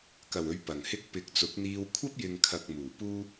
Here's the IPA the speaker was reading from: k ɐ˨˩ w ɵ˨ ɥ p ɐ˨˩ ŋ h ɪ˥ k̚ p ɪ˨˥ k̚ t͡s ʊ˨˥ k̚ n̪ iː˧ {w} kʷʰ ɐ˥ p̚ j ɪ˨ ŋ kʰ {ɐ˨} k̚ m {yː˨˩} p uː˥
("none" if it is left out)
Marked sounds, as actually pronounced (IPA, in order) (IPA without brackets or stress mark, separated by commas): w, ɐ˨, uː˨˩